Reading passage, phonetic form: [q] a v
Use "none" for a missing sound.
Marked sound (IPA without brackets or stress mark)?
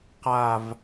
q